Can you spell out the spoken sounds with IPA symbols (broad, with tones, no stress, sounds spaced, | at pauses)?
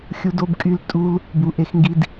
xʲ u˦ d o˦ b kʼ y˦ l tʼ u˦ l | b u˧ ʔ e˦ x ŋ ɡ i˦ d